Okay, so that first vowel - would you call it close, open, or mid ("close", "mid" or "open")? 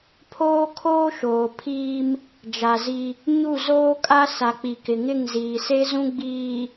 mid